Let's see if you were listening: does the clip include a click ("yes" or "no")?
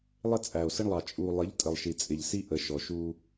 no